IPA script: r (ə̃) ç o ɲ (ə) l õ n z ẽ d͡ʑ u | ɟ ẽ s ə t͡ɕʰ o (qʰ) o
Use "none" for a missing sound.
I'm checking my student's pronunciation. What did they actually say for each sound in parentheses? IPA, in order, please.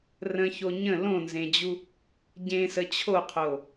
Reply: ə̃, ə̃, qʰ

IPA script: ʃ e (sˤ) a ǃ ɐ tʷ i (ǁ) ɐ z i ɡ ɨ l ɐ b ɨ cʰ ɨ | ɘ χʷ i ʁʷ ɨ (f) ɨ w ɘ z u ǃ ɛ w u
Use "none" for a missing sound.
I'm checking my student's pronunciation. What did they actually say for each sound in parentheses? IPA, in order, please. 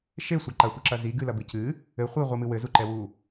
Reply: sʷ, ǁ, m

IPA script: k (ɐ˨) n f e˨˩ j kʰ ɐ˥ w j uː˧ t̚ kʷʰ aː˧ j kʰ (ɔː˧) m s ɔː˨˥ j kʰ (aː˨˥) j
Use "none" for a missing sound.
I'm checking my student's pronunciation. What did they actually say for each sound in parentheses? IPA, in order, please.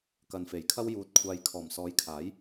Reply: ɐ˨, ɔː˨˩, aː˨˥

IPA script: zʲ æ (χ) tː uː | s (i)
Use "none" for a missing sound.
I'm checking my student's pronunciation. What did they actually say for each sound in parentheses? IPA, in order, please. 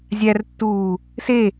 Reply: r, e

